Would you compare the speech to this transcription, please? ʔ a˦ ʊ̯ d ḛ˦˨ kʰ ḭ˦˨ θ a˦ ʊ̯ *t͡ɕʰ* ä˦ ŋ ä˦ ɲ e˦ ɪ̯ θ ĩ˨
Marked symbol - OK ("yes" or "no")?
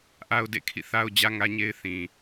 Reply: no